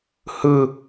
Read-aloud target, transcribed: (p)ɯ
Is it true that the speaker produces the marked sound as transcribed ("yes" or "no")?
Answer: no